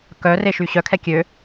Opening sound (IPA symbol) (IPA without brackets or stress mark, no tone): k